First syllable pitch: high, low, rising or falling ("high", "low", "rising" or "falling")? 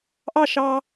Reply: falling